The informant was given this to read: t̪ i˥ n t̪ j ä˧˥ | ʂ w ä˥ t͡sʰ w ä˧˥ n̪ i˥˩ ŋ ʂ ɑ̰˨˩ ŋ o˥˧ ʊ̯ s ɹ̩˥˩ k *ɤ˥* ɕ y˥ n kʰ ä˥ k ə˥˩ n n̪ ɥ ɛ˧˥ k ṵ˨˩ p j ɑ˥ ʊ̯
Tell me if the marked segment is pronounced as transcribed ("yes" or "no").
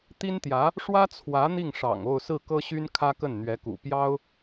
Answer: yes